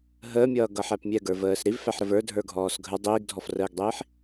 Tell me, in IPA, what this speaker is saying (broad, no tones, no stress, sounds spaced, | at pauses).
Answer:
ɦ əː mʲ ʌː ɡ ʌ ħ æ p mʲ ɛ ɡ ə˞ v əː s ɾ i v f æ ħ ɾ ə v ə˞ dʱ ə˞ ɡʱ ɔː s ɡʱ ə dˤ iː ɡ dʱ ɔ f r əː ɡ dˤ iː ħ